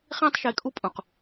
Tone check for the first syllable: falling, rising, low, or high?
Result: high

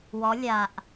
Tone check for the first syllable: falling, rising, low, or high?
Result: rising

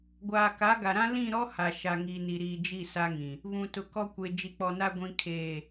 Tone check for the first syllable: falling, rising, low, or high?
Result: low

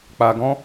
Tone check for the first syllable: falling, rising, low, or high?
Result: low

